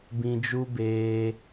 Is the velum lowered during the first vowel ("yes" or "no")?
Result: yes